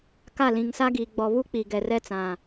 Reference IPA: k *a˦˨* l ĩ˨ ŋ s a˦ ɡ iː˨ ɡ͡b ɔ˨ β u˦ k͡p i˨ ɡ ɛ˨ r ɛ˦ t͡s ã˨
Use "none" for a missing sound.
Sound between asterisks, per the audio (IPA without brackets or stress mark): a˦˨